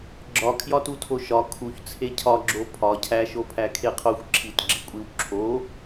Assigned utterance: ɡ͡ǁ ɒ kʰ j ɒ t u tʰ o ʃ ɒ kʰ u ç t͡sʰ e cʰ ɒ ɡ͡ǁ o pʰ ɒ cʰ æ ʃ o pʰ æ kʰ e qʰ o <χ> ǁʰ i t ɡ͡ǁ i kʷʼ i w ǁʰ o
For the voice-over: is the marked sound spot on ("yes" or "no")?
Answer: no